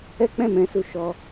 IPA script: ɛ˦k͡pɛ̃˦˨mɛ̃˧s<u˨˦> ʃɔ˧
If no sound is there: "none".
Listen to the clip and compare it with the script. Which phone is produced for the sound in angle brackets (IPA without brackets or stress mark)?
u˧